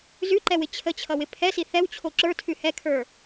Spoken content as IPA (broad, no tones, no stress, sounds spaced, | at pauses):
z ʉ ǃ ɛ w ɪ t͡ɕʰ ə t͡ɕʰ ʌ w ɪ pʰ ɛ s i θ ɛ w t͡ɕʰ o ǁ ə˞ tʰ ʉ h ɛ kʰ ə˞